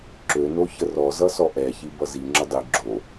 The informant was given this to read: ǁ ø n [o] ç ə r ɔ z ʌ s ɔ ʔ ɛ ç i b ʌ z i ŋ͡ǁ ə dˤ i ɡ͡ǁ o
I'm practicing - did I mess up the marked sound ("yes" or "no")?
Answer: no